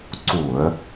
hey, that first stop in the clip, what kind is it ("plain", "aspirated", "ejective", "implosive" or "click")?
click